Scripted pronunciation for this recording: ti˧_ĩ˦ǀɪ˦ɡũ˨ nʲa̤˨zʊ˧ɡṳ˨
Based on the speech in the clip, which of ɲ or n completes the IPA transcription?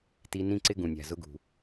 n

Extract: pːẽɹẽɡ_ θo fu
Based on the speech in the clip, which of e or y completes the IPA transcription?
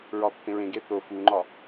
e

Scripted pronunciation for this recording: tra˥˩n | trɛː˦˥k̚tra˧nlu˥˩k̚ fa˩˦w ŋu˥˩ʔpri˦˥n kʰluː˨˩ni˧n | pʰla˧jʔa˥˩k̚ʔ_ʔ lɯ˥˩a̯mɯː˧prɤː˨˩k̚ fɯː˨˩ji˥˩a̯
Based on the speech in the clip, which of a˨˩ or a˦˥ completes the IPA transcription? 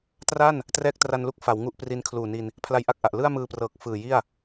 a˨˩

